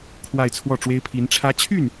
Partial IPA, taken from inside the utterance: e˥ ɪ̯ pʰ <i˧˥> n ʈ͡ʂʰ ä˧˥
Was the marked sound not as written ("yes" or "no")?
no